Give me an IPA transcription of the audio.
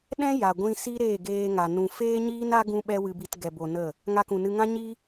ɗ ɛ̃˦ j a˨ ɡʷ ĩ˧ s i˦ ɾ eː˦˨ ɡ eː˧ ŋ a˨ n ũ˧ f eː˦ ɲ iː˦ n a˦ ɡ ũ˦ ɓ ɛ˦ w ɨ˧ b i˧ t ɡ ɛ˧ b o˧ n ə˦˨ | ŋ a˧ k ũ˨ n ɨ˧ ŋ ã˦ ɲ i˦

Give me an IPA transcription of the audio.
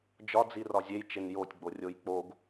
d͡ʒ ɒ d͡z i r ɒ zʲ e j t͡ʃ e n j o tʲ ɡ͡b o rʲ o j k͡p o ɡ

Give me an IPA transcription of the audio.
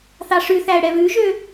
θ ɑ ʂ ʉ θ æ ə̯ ɽ ɛ β ʉ ʒ ø

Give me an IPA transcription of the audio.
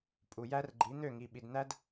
pʼ u˨ j æ˦ r ɡ͡ǃ i˨˦ n̪ ø˦˨ ŋ i˨ ɓ i˨ d n̪ æ˦ d

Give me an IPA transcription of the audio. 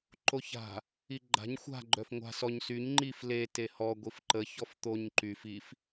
ǃ o ç a̤ | i ɡ͡ǃ a̤ ɲ xʷ a̤ ɡ͡ǃ œ f ŋʷ a̤ s ɔ ɲ s y ɲ ŋ͡ǃ i f l e t e h ɔ ɡʷ i f ǃ ə ç ɔ f t̪ o ɲ ǃ y f i f

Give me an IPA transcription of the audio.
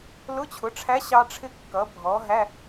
l ʊ˧˥˧ t͡ɕʰ ʊ˩˥ ʈ͡ʂʰ æ˧˥ ɕ ɑ˥ ʈ͡ʂʰ ɪ˦˨ kː ʌ˩˥ bʱ ɔ˩˥ ɦ æ˧˥˧

